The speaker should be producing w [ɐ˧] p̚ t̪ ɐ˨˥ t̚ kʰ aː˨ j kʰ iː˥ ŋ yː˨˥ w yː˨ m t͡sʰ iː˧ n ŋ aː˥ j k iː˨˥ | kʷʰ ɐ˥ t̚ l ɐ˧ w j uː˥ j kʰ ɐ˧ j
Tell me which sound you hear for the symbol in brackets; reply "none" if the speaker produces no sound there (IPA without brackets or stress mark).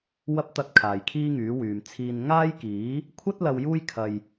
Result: ɐ˧